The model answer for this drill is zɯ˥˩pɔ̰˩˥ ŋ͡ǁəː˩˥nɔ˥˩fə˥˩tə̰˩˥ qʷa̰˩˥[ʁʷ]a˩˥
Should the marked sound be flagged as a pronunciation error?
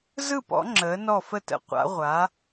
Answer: no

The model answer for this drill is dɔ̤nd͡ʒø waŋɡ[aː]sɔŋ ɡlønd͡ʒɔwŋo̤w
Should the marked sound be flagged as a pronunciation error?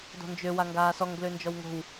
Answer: no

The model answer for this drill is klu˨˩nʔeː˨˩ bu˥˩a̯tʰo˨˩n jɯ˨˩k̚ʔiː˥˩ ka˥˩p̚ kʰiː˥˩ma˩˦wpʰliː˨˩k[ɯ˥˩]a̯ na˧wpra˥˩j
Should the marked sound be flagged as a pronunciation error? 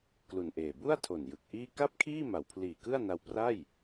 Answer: no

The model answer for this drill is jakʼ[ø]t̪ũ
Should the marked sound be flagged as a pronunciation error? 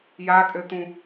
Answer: no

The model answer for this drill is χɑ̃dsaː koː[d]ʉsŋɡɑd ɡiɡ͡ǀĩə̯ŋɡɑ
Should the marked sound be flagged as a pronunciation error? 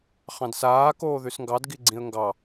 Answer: yes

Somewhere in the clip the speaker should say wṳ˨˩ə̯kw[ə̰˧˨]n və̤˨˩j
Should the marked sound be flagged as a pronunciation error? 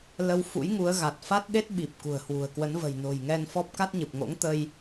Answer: yes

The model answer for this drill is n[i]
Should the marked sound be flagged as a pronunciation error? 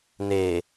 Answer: yes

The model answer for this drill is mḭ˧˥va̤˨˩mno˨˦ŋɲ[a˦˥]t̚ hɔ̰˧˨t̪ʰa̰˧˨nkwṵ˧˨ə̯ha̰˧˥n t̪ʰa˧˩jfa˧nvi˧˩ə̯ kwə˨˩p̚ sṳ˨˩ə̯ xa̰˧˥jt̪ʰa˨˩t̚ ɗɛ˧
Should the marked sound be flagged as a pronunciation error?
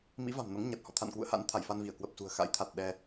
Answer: yes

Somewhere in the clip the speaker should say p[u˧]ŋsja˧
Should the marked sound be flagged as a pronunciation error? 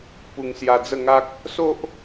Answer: no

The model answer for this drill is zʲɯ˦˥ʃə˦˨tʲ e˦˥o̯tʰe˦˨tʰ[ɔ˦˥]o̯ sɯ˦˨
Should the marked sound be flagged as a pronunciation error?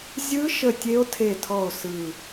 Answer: yes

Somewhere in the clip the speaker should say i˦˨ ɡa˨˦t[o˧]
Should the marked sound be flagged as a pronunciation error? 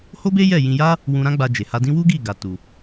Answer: yes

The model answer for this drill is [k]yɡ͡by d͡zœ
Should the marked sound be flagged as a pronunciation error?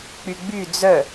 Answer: yes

